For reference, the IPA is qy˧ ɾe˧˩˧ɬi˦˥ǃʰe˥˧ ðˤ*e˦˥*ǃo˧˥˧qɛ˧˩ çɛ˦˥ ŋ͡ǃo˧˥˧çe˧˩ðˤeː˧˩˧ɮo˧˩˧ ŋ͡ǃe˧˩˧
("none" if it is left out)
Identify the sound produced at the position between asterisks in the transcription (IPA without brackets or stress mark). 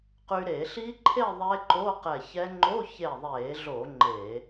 e˦˥